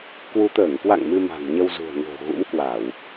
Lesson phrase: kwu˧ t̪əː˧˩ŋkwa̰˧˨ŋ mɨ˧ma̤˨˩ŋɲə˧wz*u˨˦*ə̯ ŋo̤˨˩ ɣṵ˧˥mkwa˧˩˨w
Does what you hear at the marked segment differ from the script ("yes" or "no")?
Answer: yes